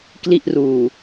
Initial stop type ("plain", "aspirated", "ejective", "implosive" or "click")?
plain